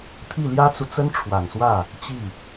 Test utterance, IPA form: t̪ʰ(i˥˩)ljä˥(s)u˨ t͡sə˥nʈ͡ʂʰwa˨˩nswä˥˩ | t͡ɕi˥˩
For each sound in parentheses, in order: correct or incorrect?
correct, incorrect

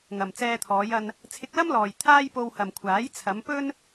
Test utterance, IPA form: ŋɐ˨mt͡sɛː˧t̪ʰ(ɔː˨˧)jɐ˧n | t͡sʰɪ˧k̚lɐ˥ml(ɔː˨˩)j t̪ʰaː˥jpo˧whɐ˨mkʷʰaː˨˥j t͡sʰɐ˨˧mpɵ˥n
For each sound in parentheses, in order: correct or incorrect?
correct, incorrect

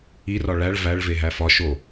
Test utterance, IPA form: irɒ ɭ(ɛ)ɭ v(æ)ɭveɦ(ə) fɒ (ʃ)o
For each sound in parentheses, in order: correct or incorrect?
incorrect, correct, incorrect, correct

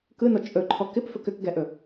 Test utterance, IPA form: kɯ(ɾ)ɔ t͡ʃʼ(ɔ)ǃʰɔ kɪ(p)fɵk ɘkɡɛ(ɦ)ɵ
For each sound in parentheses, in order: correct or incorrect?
incorrect, incorrect, correct, incorrect

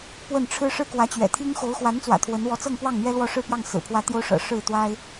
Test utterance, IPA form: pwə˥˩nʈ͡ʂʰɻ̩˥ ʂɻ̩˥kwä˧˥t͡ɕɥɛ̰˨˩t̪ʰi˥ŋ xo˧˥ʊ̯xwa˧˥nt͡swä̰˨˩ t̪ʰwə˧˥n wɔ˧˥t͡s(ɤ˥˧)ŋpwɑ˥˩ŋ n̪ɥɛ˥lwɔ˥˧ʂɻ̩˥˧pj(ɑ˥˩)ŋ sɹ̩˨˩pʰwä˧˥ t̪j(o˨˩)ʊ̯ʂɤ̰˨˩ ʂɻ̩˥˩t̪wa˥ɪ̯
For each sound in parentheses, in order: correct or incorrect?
correct, correct, incorrect

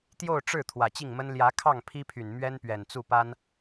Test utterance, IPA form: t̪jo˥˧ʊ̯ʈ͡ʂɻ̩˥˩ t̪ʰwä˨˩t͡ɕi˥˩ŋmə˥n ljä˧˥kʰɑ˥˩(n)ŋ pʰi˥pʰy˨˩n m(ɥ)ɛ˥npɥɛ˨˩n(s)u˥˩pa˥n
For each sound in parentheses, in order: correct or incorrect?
incorrect, correct, incorrect

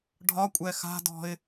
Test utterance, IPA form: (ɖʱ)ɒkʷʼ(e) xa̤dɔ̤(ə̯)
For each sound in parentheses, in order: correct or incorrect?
correct, incorrect, incorrect

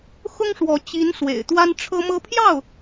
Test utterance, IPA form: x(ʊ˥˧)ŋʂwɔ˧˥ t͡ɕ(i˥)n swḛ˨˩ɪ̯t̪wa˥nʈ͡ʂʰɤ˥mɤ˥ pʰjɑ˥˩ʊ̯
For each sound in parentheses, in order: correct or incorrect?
incorrect, incorrect

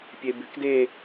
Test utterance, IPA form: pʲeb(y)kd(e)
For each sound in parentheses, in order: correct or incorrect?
correct, correct

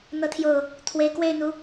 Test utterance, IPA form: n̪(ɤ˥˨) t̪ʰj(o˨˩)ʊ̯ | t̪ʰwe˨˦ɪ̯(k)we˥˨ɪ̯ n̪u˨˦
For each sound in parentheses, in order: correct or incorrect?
incorrect, correct, correct

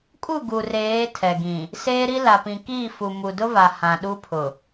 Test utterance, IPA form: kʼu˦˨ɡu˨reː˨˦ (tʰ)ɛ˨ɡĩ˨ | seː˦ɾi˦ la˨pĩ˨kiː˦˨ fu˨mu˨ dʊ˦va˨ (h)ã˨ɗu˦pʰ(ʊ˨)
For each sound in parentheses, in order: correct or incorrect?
correct, correct, correct

